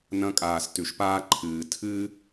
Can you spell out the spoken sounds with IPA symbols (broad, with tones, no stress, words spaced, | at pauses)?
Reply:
nɐ̃˧kʼaː˨stʉ˨ʃpaː˧ ǃʰɨː˨tʰɨː˦